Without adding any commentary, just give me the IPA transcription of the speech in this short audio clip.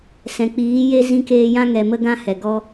s ɛ̃˨ k͡p iː˨˦ j e˦ z ĩ˧ k eː˧ j ã˦ ŋ ɛ˨ m ə˧ ɡ ã˧ h ɛ˨ ɡ ɔ˧

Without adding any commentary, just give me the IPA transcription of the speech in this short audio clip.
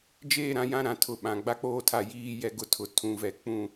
d͡ʒ eː˦˨ ɾ ã˦˨ j ã˦ ɾ ã˨ tʰ ʊ˨ ɓ ã˨ ɡ͡b a˦ k͡p oː˦ tʰ a˦˨ j iː˦ j ɛ˦ ɡ ʊ˦ tʰ ʊ˨ tʰ ũ˨ v ɛ˨ k͡p ũ˦˨

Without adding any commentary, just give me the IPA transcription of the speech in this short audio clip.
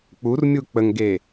k͡p u r mʲ u k͡p ə ŋ ɡ e

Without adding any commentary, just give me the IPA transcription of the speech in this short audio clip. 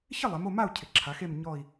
ç ɪ˦˨ lˠ ɛ˩˧ m o˦˨ m a˦˨ u̯ cʰ ɪ˩˧ ǁʰ a˩˧ x e˦˨ m ɲ ɔ˦˨ i̯

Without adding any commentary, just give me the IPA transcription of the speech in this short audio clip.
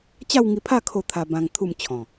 t͡ɕ a˥˧ w ŋ i˧ pʰ a˥˧ kʰ o˥˧ t̪ʰ a˧ b ã˧ ŋ t̪ʰ u˥˧ m t͡ɕʰ ɔ̃˨˩

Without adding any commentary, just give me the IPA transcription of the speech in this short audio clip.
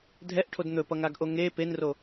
dʱ ɛ ʔ ʈʰ o d n̪ ɵ p ʌ ŋ a ɡ ʔ o ŋ e p e n r o

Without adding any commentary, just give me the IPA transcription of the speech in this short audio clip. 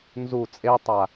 n z u t͡sʼ e tˤ a

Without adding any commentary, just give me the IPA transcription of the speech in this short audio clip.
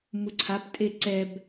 m u ǀʰ a p tʼ e ǀ ɛ b

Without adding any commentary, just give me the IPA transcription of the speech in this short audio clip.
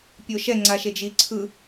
pʲ o ʃ ɛ ŋ͡ǀ a ʃ e d͡ʒ i ǀʰ ɯ

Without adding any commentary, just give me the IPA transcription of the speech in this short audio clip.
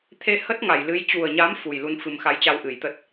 t̪ʰ e˧ h ə˦˥ t̚ ŋ a˧˩ j l ɨ˨˦ j t͡ɕ u˨˩ ə̯ ɲ a˨˦ m f u˨˩ j l u˧ n f ɨ˨˩ m x a˨˦ j t͡ɕ a˧ w ʔ ɨ˧˩ j t̪ ə˦˥ t̚

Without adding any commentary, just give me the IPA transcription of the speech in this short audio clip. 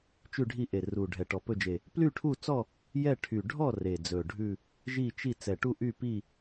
t͡ʃ ʉ˦˨ ɖʱ i˦˨ ʔ e˨˩ r u˨˩ ɖʱ ɛ˨˩ ʈ ɔ˨˩ p ɵ˦˨ d͡ʒ e˨˩ | p l y˦˨ ʈʰ u˦˨ t͡s ɔ˦˨ | j ɛ˦˨ ʈʰ y˨˩ ɖʱ ɔ˦˨ r e˨˩ d͡z ɵ˨˩ ɖʱ ʉ˦˨ | ʒ i˦˨ t͡ʃ i˦˨ t͡s ɛ˨˩ ʈ u˦˨ ʔ y˦˨ p i˦˨

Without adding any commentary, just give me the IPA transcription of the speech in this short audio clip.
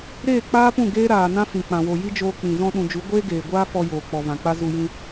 ɾ eː˦˨ k͡p aː˦ p ũ˦˨ ɡ eː˦ ɾ aː˨ n ã˦ f ĩ˨ k͡p ã˨ w o˨ j i˦ d͡ʒ oː˧ k͡p ĩ˨ z ɔ̃˧ ɗ ũ˨ d͡ʒ u˨˦ ɡʷ eː˦ ɡ eː˨ ɡʷ aː˦ f ɔ˧ j oː˨ k͡p ɔ˨ v ã˨ k͡p a˦ z u˧ j ĩ˧

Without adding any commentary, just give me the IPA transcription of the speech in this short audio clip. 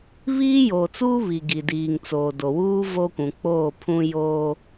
β iː˦ j oː˨ t͡s uː˦ β i˨ ɡ i˨ d iː˨ ŋ t͡s o˨ d o˨ w uː˦ v o˦ kʷ ũ˨ k͡p oː˦˨ pʰ ũ˦ j oː˦

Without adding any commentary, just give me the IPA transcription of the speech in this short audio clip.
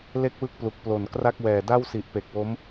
l e˥˩ k̚ w ɯ˥˩ k̚ p l u˨˩ k̚ p l o˨˩ n k r a˥˩ k̚ w ɛː˨˩ d a˥˩ w s i˨˩ ʔ p e˨˩ k̚ w o˦˥ m

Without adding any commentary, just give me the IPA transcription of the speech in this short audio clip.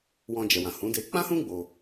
w ɔ̃˧ d͡ʒ ɛ˨ w ã˨ h ũ˨˦ d e˧ k͡p ã˦ h ũ˦ ɡ͡b o˧

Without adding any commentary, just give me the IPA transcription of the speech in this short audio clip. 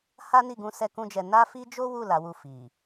h a˦ n i˦˨ ɡ ũ˧ s ɛ˦ k ũ˦ d͡ʒ ɛ˧ n a˦ f i˦ d͡ʒ o˦ w u˦˨ l a˨˦ w u˦˨ f i˨

